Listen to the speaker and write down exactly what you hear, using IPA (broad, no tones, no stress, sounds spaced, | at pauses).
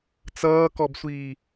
t͡s ʌː k ɔ b sʷ iː